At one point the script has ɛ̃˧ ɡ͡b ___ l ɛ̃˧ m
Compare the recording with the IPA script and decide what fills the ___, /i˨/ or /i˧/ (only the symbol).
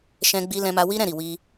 i˧